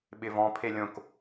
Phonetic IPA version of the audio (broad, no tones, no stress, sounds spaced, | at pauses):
ɓ ɪ v ɔ̃ pʰ e lʲ õ k